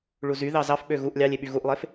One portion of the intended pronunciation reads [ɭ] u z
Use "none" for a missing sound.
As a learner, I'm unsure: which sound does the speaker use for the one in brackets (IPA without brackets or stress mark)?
ɭ